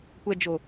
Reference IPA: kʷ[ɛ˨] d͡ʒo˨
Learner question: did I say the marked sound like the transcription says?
yes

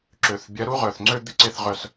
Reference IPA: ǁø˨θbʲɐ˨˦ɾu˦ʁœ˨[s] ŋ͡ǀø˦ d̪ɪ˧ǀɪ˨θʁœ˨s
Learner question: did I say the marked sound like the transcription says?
no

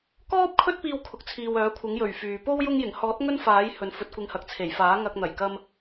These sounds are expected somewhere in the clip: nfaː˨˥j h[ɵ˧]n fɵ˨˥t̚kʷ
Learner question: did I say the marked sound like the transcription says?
no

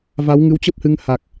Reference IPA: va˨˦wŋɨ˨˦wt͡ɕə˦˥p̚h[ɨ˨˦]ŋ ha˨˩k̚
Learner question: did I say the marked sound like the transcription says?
yes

